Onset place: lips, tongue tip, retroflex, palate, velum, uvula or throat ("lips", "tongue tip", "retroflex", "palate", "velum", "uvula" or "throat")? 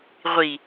uvula